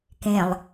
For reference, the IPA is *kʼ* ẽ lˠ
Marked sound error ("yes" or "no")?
yes